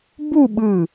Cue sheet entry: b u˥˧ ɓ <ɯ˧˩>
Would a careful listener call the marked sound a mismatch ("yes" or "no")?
no